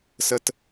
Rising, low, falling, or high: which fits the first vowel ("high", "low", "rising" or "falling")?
high